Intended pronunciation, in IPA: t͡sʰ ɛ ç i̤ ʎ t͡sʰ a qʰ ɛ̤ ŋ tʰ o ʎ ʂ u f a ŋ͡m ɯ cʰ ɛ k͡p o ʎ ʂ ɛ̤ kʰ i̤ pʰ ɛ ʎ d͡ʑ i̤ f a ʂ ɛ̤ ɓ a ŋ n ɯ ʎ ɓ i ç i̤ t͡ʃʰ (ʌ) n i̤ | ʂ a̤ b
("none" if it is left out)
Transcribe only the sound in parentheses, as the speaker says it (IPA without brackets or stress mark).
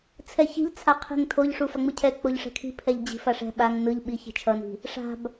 ʌ